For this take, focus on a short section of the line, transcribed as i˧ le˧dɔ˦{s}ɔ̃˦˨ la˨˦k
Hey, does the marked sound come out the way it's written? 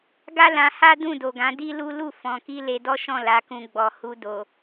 no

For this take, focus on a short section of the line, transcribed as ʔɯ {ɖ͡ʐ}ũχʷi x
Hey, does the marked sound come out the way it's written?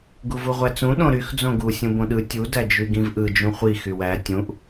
no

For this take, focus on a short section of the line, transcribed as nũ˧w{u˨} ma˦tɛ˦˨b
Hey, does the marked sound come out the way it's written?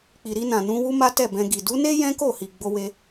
no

